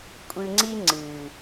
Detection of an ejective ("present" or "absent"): present